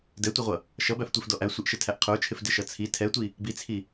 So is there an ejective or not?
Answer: no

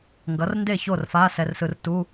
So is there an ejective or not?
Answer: no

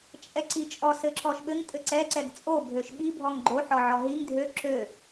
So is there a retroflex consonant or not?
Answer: no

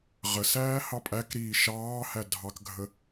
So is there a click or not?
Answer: no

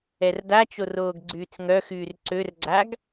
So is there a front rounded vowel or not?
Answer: yes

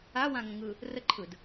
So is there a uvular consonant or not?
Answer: no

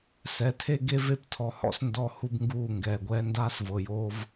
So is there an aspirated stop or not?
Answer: yes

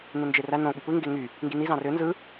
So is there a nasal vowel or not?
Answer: yes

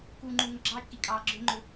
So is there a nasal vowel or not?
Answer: no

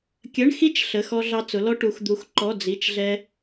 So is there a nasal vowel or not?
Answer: no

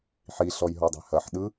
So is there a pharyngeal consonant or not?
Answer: yes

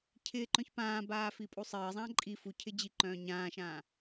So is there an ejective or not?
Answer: yes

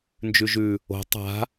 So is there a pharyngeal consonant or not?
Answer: no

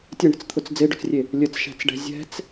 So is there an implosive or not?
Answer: no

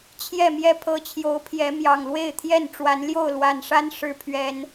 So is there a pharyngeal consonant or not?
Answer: no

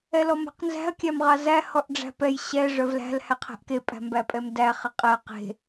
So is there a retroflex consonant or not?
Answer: yes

